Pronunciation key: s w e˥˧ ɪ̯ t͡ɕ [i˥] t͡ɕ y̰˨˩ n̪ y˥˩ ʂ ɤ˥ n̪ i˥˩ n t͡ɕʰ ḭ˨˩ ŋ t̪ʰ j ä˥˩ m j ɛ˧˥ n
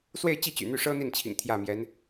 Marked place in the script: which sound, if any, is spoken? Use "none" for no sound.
i˥˩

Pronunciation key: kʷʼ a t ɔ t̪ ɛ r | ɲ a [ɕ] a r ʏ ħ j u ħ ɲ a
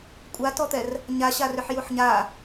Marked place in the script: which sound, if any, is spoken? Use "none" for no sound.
ɕ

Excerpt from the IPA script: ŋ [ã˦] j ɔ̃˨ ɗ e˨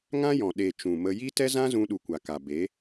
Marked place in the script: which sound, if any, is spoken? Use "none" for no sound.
ã˦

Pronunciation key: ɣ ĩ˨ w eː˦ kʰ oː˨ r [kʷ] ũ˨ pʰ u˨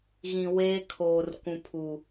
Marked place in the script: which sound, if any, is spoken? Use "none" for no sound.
kʷ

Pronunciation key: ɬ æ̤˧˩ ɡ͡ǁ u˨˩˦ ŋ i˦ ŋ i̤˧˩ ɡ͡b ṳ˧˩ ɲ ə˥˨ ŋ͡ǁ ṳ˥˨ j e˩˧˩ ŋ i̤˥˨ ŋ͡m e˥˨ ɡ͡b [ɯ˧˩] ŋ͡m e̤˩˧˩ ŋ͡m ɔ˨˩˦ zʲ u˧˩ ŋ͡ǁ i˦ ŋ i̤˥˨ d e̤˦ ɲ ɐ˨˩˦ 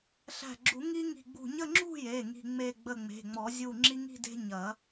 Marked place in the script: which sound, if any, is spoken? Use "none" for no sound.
ə˧˩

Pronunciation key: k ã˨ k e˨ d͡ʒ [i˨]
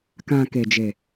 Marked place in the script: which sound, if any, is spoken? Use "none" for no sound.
e˨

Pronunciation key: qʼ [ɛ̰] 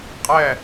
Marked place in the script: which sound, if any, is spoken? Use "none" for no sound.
ɛ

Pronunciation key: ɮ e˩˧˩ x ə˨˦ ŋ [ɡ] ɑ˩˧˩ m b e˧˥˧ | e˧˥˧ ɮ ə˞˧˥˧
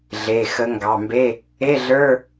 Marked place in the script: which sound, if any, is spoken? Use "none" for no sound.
ɡ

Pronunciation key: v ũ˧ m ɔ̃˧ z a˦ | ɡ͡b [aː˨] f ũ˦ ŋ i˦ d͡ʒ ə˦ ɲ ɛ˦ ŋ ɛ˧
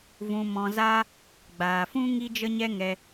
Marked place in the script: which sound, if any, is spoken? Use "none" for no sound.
aː˨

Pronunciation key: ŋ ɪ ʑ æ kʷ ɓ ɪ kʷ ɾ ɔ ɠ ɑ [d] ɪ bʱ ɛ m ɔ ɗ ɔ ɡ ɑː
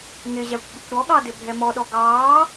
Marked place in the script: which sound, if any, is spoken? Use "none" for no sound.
d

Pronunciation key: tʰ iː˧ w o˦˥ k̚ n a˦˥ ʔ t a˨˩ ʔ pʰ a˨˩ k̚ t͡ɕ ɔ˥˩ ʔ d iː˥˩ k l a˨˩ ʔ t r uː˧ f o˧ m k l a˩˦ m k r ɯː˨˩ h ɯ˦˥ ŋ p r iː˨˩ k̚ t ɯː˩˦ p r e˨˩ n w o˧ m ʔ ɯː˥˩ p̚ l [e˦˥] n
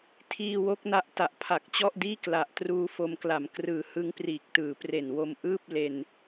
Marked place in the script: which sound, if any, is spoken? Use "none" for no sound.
e˧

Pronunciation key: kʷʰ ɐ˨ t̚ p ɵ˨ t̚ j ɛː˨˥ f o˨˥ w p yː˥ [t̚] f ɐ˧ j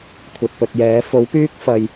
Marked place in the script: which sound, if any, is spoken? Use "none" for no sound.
k̚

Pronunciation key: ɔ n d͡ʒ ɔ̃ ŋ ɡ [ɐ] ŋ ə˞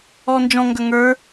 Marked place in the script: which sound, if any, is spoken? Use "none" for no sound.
ɐ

